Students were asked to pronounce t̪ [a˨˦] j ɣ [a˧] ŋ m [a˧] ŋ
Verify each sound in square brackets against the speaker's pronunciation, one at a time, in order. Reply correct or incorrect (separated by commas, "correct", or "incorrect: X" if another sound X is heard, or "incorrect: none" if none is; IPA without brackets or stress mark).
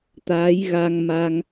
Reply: correct, correct, correct